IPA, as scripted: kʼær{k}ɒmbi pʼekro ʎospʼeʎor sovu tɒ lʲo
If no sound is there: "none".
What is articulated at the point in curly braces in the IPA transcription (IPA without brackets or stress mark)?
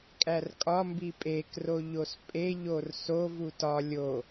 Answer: kʼ